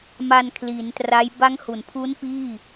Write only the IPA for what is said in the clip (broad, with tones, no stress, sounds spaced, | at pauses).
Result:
m a˧ n kʰ l i˩˦ n t r a˦˥ j b a˦˥ ŋ h u˩˦ n pʰ u˦˥ n p iː˥˩